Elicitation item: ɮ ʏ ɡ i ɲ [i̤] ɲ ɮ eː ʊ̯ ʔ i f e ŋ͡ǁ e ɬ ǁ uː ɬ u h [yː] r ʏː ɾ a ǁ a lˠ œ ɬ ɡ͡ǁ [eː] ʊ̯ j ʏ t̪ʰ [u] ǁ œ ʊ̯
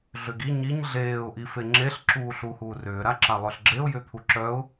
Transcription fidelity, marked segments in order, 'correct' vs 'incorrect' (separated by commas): incorrect, incorrect, incorrect, correct